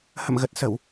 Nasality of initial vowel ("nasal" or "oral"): oral